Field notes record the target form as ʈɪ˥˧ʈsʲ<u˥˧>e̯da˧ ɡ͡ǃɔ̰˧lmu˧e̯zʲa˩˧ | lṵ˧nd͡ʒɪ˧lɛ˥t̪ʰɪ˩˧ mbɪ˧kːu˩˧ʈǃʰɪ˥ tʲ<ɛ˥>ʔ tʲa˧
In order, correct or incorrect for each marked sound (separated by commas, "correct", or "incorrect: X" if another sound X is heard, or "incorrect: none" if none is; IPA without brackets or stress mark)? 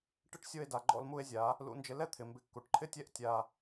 incorrect: o˥˧, incorrect: ɛ˥˧